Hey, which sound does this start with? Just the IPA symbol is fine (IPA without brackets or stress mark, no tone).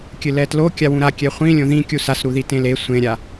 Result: kʲ